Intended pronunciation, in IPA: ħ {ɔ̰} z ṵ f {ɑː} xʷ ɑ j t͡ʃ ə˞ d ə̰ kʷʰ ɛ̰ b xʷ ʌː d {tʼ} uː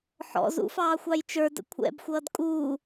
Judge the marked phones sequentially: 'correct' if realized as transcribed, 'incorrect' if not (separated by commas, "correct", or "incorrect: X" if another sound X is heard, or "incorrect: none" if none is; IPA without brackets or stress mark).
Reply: correct, correct, incorrect: kʼ